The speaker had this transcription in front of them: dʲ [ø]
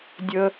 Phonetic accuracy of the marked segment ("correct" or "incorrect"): incorrect